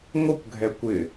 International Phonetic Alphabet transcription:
ŋʷ ə kʷ ɡʱ ɛ kʷ ɪ

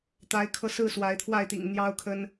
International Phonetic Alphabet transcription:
t̪ a˨˦ ɪ̯ kʰ ɤ˧ s ɹ̩˥˨ s w a˨˦ ɪ̯ t̪ʰ w a˥˨ ɪ̯ t̪ ḭ˨˩ ŋ n̪ j ɑ˦ ʊ̯ kʰ ə˦ n

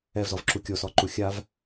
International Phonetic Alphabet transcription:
ɛ v z ɔ v ǁ u kʲ o s ɔ ǃ u xʲ a v

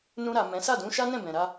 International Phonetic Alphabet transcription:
n ũ˧ ɾ a˨ m ɛ̃˨˦ s a˦˨ d ũ˨˦ ʃ a˦ n ɛ̃˦˨ b ɛ̃˨ ɾ a˧

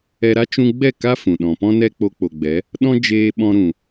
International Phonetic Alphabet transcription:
ɛ˧ ɾ a˦ t͡ʃ ũ˧ ɡ͡b ɛ˦˨ k a˦ f ũ˨ ɗ ɔ̃˨ p ɔ̃˦ n ɛ˦ k͡p o˧ k͡p o˨ ɡ͡b ɛ˨˦ | ɗ ɔ̃˦ d͡ʒ eː˧ ɓ ɔ̃˧ ɾ ũ˨

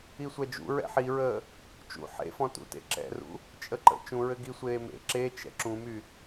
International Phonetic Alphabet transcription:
i sʷ ɛ d͡ʒ ṵ ɹ ɛ̰ ħ i ɹ əː | t͡ʃ ṵ ħ ḛ f ɔ̃ t ṵ t ḛ ǁ ɛ̰ r ṵ | t͡ʃʼ ə ǃ ə̰ t͡ʃ ũ ɹ ɘ ɡ i sʷ eː m ḛ ǁ e t͡ʃ ɛ̰ ǁ ũ m y

